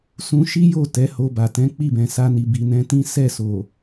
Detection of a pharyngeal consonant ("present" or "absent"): absent